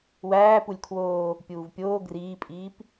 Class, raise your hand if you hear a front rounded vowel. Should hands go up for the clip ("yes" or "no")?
no